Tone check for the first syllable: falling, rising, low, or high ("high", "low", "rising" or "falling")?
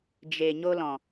low